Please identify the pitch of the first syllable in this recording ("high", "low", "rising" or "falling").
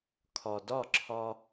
low